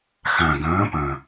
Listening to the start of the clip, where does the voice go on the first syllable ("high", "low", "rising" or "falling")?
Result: low